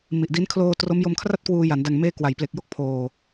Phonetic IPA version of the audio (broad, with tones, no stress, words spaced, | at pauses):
mi˨˩ʔdi˦˥n kʰloː˧ tro˦˥mjo˧mkʰra˥˩t̚ kwuː˧ja˩˦n da˨˩ŋmeː˧ kwa˩˦jple˨˩k̚jo˥˩k̚pʰoː˨˩